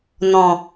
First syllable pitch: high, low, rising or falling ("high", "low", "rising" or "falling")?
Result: low